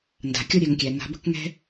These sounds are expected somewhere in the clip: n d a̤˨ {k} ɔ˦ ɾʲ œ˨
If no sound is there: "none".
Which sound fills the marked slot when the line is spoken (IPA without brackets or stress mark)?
kʲ